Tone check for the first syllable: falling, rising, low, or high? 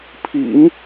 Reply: low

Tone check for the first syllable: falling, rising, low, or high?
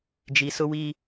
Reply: low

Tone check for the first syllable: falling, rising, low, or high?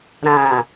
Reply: low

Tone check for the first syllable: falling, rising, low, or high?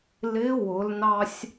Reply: rising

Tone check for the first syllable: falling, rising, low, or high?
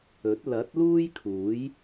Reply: rising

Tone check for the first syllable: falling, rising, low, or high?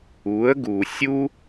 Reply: rising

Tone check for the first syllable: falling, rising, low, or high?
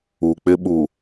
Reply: low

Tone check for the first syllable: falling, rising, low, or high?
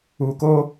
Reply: low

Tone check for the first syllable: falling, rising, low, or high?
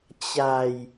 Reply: low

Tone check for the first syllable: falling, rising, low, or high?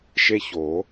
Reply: high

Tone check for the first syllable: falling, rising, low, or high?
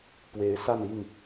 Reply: rising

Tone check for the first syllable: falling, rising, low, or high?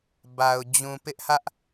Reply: low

